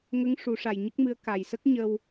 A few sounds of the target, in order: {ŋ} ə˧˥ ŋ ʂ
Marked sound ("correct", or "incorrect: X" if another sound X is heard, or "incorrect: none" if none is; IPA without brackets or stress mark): correct